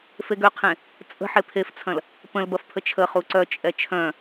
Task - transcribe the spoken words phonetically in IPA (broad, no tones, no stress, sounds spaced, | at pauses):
f e ɡ ø qʰ ẽ | t͡sʼ ə̤ ħ e pʰ e f t͡sʰ ɐ̃ l | p ə̃ l b ɐ f pʰ ə t͡ʃʰ ə χ u ǀ œ t͡ʃʼ ɛ t͡ʃʰ œ̃